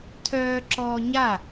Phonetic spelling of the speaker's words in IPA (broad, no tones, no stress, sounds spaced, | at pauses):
tʰ œː ǁ ɔː ɲ a